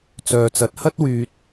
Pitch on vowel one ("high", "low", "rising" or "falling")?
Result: low